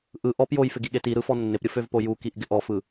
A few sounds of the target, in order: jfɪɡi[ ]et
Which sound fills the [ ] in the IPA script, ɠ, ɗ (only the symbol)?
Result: ɠ